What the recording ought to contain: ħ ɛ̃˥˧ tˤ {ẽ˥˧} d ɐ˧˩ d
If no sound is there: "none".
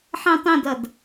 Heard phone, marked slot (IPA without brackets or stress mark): ẽ˥˧